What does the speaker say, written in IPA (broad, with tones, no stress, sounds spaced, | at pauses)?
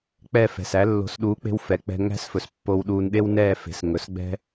k͡p ɛ˥˩ f ɛ̤˩ s æ˩˥ lː o̤˩˥ s ɗ uː˩˥ k͡p e̤˧ w f ɛ˩ k͡p ɛ̤˧ ŋ æ̤˥ s f ɵ˩ s pː o˧ w ɗ uː˧ n ɗ e˥ w n ɛː˥˩ f e̤˩˥ s ŋ ɵ˩˥ s ɡ͡b ɛ̤˥